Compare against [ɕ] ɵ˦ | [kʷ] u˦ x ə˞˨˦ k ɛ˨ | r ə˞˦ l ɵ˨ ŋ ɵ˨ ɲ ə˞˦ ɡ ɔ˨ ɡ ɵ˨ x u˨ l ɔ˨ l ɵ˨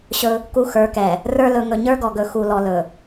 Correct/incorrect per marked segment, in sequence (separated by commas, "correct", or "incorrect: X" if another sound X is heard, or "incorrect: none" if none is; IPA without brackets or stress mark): correct, incorrect: k